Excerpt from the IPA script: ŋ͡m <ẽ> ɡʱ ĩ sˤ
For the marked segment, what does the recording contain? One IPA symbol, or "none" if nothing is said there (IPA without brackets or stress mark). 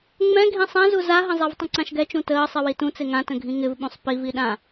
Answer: ɛ̃